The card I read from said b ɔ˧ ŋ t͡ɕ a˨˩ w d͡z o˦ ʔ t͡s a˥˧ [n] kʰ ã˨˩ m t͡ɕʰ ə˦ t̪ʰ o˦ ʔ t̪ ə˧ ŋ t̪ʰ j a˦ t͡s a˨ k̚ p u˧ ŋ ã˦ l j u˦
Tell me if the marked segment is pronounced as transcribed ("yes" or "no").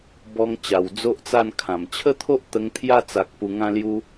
yes